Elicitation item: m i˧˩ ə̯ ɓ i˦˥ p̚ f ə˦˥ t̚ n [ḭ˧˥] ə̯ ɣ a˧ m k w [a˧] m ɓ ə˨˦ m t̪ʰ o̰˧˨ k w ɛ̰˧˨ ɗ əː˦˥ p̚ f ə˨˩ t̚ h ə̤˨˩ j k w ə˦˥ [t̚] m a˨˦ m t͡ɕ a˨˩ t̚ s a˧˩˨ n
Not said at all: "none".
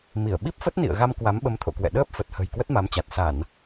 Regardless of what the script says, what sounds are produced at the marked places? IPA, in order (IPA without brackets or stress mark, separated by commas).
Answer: ḭ˧˨, a˨˦, t̚